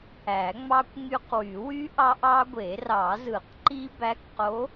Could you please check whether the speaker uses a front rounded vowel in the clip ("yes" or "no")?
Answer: yes